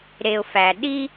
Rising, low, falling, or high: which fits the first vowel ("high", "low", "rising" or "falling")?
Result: low